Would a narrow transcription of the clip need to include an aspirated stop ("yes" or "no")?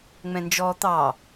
no